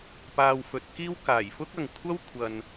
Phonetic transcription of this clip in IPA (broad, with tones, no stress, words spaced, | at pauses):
paː˧wfɵ˨˥t̚kiː˥w kaː˨˩jfʊ˥k̚ɐ˨ŋ kʷʰɐ˥wkʷʰɐ˨n